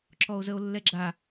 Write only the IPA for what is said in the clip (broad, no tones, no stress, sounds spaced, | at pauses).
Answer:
ǁ ɔ o̯ z ə o̯ lː ɛ ɡ͡ǁ a